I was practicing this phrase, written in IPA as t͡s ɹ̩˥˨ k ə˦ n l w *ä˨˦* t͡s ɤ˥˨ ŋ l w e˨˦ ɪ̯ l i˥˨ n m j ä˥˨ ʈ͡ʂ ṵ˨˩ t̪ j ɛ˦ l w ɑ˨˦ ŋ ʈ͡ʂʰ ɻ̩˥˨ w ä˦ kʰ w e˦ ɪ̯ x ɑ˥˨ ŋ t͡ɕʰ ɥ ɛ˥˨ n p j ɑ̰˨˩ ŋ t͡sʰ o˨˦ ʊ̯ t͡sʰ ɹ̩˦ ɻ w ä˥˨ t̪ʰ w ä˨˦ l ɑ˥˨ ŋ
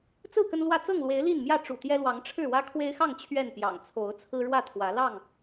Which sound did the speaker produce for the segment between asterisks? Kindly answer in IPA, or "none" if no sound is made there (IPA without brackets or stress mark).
ä˥˨